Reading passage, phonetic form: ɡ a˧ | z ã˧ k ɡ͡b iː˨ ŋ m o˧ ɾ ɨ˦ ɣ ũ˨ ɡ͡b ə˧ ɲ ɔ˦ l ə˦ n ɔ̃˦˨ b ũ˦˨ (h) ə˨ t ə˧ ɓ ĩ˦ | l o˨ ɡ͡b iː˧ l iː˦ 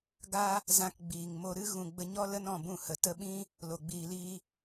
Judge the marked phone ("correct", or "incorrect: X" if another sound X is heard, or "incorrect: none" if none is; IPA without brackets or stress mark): correct